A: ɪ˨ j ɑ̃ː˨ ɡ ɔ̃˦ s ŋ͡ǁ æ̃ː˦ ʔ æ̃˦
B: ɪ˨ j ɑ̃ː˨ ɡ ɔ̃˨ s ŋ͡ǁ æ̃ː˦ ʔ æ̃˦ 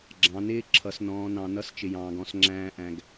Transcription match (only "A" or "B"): A